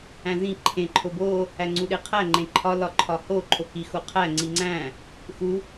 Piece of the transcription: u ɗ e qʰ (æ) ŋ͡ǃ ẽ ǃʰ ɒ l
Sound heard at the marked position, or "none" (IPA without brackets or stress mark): æ